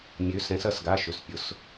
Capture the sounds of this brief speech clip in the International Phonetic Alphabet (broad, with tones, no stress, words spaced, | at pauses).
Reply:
mʲø˩˧sɛ̃˩˧s ɐ˩˧˩sɡa˩˧˩ʃø˩˧s pʲʊ˩˧s